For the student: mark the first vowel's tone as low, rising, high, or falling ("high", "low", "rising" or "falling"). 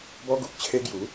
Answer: high